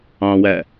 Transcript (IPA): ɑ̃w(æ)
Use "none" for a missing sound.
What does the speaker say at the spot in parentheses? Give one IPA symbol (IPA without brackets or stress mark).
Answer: æ